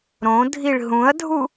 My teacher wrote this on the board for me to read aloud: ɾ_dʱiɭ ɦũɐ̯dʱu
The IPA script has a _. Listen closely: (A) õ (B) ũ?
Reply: A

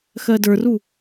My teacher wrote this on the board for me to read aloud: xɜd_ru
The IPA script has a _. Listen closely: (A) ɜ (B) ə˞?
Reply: B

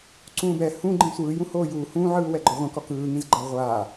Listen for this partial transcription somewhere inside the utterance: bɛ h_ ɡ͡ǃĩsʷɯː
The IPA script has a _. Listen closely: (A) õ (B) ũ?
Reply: B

